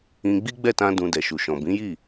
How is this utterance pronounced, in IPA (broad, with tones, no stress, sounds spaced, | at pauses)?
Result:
ĩ˧ ɡ͡b i˦ ɡ͡b ɛ˦˨ t ã˧ d ũ˨ d ɛ˨ ʃ u˨ ʃ ɔ̃˨ b ĩ˨˦ j i˦˨